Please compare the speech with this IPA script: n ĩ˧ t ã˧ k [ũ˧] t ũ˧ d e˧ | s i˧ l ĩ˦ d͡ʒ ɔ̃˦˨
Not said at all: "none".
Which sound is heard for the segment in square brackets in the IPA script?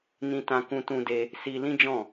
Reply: ũ˧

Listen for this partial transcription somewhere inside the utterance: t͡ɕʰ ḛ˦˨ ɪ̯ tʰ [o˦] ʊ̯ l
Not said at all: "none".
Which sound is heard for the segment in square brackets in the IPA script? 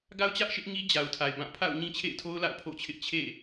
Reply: o˦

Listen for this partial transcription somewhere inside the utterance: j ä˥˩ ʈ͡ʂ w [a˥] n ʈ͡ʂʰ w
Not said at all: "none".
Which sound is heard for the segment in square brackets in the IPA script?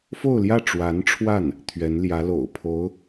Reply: a˧˥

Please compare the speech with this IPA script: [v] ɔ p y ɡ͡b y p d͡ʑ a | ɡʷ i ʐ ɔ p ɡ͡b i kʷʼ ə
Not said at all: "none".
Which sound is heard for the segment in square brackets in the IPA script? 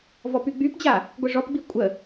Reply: v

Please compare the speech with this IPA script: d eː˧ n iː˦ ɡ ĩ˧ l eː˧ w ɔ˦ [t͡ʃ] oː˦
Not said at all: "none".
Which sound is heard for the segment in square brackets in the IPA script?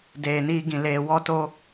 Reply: t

